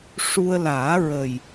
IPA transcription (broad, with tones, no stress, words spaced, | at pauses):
ʂu˧ə̯ laː˨˩˦ɹə˨˩j